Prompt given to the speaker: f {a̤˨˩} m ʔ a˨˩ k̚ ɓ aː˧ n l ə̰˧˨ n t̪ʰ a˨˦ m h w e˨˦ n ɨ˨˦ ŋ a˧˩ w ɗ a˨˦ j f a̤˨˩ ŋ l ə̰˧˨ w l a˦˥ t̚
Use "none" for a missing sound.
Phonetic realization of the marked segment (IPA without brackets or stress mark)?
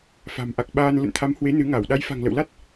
a̤˨˩